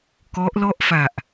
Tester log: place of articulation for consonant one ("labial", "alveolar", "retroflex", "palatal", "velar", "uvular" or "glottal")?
velar